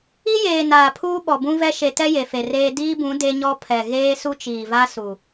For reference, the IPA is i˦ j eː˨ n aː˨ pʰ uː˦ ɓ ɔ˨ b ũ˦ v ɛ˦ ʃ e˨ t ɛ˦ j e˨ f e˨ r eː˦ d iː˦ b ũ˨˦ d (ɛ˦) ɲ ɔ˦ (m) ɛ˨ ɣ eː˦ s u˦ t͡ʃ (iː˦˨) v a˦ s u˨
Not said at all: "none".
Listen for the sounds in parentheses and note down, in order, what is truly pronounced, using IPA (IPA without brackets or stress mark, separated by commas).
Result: e˦, pʰ, iː˨